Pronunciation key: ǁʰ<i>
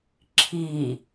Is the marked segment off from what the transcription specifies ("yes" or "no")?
no